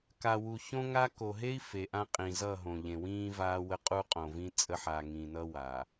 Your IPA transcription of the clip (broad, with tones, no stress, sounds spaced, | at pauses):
k a˨ w u˨ ç õ˦ ŋ a˦ k o˨ ɦ e˦ i̯ f e˨ ʔ ã˦ qʼ ĩ˨ z ʌ˦˨ ɦ õ˨ ʎ ẽ˨ w ĩː˦ v aː˦ w ə˦ qʼ u˦ qʼ õ˨ v ĩ˦ t͡sʼ ə˦ ħ a˨ ŋ ĩ˨ n ʌ˦ w a˨